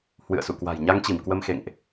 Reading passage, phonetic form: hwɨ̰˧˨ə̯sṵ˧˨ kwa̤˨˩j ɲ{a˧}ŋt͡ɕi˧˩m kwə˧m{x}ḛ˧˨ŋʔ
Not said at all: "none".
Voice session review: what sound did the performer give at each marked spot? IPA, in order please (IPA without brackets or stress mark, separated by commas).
a˧, x